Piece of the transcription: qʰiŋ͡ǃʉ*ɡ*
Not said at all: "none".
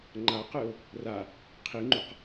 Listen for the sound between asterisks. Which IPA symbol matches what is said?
q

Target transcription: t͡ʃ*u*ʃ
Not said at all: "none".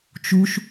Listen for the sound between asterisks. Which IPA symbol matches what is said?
u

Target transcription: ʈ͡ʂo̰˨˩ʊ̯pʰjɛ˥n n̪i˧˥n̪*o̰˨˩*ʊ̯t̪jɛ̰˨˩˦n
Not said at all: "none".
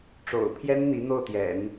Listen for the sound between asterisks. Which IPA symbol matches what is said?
o˥˩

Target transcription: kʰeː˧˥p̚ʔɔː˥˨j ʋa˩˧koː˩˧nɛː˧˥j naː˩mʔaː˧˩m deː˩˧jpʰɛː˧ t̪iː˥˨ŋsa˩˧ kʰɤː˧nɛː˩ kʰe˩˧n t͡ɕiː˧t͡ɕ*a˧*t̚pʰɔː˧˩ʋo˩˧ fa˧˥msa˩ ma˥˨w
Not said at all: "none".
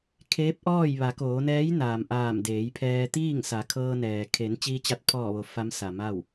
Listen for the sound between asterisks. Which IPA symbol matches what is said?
a˧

